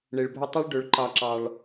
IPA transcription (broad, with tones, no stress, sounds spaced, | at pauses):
ɳ e˨ ɭ bʱ ɵ˧ tˤ i˦ ɭ ɖ ɵ˧ ɭ ǃ ɑ˧ ǁ ɑ˧ ɭ